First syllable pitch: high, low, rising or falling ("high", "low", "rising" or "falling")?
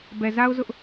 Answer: low